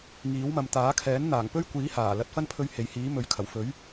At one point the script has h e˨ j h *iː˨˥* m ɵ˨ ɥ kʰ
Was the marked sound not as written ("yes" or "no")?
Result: no